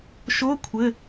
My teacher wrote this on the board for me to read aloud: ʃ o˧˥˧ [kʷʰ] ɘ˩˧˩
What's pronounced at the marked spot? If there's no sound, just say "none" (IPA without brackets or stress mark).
kʷʰ